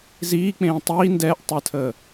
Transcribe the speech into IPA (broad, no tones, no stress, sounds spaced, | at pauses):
z iː k͡p ẽː tˤ iː n d ɛː ʔ tˤ əː tʰ əː